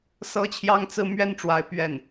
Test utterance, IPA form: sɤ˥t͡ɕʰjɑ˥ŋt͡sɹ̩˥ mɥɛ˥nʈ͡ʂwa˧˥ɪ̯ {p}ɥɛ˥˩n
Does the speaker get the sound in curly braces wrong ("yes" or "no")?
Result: no